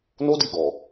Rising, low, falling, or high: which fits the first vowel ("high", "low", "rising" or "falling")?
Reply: high